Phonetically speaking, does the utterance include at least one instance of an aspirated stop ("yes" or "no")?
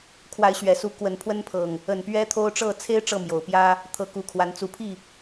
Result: yes